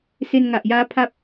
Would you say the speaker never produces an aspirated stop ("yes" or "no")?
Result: no